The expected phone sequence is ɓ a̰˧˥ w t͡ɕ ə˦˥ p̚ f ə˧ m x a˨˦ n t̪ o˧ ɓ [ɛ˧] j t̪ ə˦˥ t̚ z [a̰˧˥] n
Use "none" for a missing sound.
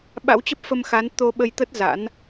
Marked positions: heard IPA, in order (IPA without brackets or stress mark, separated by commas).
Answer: ə˧, a̰˧˥